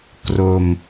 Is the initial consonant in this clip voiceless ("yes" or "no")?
yes